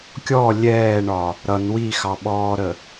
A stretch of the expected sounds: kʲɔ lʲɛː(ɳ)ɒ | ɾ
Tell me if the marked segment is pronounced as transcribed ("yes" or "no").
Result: yes